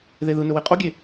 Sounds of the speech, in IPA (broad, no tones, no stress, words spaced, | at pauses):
ðeðɯnɵ weqʼoɡʲe